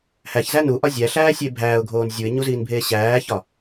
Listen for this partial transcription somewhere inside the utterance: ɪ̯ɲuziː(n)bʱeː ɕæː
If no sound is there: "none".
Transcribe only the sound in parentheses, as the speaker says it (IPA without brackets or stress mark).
n